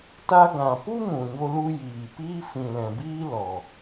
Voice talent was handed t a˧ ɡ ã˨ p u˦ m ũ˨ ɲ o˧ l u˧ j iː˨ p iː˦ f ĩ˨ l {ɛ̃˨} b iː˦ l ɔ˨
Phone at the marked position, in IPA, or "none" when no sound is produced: ɛ̃˨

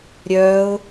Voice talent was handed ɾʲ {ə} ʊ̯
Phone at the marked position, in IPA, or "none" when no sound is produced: œ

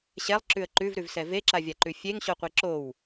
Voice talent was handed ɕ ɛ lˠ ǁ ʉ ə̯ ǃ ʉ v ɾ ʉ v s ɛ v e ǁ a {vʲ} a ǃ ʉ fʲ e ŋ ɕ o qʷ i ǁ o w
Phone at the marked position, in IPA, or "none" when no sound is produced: vʲ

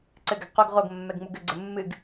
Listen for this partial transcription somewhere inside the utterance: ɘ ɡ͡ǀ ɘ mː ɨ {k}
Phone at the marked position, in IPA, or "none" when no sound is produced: ɡ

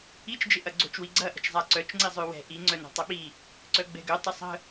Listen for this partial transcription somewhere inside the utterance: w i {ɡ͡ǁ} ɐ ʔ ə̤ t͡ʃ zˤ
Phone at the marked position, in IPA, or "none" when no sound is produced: ɡ͡ǀ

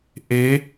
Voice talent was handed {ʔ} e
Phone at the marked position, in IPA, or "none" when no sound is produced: ʔ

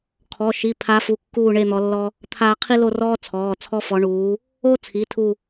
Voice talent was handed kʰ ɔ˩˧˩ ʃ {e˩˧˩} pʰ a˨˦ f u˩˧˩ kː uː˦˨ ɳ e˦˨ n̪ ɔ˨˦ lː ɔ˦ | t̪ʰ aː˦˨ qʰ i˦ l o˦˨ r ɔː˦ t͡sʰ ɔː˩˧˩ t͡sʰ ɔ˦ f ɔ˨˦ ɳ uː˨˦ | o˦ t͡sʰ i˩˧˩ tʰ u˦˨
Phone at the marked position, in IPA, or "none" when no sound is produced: i˩˧˩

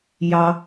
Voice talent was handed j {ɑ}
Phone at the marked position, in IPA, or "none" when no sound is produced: ɑ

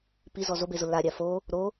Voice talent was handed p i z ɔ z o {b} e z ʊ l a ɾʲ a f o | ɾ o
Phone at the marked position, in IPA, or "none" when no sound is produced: b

